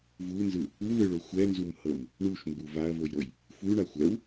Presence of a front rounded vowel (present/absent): absent